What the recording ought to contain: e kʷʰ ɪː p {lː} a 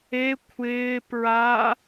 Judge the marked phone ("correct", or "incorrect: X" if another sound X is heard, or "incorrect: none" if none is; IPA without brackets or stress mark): incorrect: ɹ